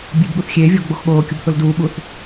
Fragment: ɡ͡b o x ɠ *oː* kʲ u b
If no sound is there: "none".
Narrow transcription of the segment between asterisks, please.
oː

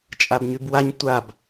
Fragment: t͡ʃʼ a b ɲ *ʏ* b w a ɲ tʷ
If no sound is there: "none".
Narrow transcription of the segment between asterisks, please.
y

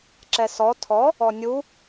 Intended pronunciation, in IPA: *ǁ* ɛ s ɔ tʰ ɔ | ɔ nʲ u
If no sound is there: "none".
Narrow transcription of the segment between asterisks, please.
ǁ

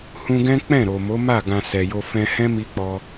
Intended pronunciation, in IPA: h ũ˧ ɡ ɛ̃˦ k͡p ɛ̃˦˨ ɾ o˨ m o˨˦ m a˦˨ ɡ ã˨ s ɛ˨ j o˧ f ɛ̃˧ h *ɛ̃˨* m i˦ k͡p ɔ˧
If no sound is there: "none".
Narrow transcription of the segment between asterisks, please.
ɛ̃˦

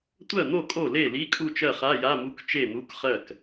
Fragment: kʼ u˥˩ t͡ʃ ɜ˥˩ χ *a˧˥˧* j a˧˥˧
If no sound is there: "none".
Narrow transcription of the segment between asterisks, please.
a˧˥˧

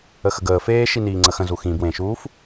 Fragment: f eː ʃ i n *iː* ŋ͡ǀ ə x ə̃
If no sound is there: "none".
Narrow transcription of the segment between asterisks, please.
iː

